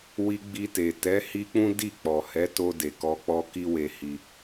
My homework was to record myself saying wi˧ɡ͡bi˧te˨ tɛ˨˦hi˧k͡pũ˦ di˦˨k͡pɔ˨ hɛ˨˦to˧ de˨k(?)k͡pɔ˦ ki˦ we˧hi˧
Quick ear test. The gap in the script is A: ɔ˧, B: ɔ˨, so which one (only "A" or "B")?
A